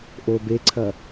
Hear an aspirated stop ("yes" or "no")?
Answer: yes